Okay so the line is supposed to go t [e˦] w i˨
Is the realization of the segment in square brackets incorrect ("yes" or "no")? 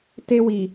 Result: no